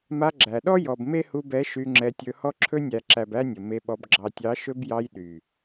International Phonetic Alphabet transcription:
ma˧ɡ͡ǁæ˨ɗɔ˦ jɔ˨b me˦hu˧bɛ˨˦ ʃy˧ŋ͡ǁɛ˧tʲɵ˧ hɔ˧ǁʰɵ˧nʲæ˨ǁæ˨b æ˦nʲə˨ me˧ɓɔ˧b ɡ͡ǁɑ˨tʲɑ˨˦ ʃɵ˧bjɑ˧j ɗy˨

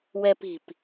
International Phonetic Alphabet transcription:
wɛpi̤p

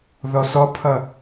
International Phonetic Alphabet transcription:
ðɔsɔpʰʌ

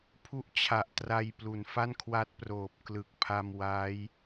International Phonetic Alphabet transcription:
pʰu˦˥ʔt͡ɕʰa˨˩ʔtra˧j plu˩˦nfa˥˩nkʰwa˦˥t̚proː˨˩p̚ klɯ˨˩k̚pʰa˧m wa˦˥j

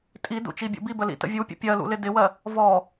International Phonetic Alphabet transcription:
tʼidṵ t͡ʃibʲṵbibə lḭtə̰vʲupʲə̰ pʲɜlṵ lɪdɪwɜ | vɔ

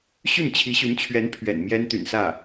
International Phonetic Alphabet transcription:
ɕy˥˩nt͡ɕʰi˧˥ɕy˧˥nt͡ɕʰɥɛ˧˥n pʰɥɛ̰˨˩n mjɛ˥nt̪y̰˨˩nsä˥˩

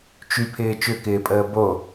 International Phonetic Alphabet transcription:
t͡ʃypʰɪː t͡ʃʏkɪːpʼəː bo

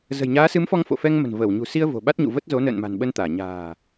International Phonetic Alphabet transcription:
zə̤˨˩jɲaː˨˦sɨ˨˦m fɔ˧ŋfo̰˧˨fɛ˧ŋmə̤˨˩n vəː˧˩wɲṳ˨˩si˧ə̯ vo̤˨˩ɓa˦˥t̚ɲṵ˧˨ və˦˥t̚ zo˨˦ nə̰ː˧˨nma̤˨˩nɓə˧nt̪aː˧˩ ɲa̤ː˨˩

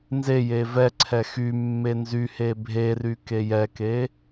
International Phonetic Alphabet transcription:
nzeje vɛǀʰɛ xymːe nzyhe bʱery kejɛke

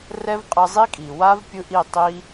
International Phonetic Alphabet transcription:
rɛ˦vqʼɯ˧ zˤi˦kʼi˨ wa˦vpʲɯ˧ʔi˦˨ tˤi˦

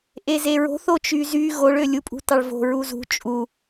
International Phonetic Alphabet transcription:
ʔezeɹo̤ θot͡ʃyzy ɣoɭølʲupʼṳ tɑɭvo̤ ɹuzṳ t͡ʃʼu

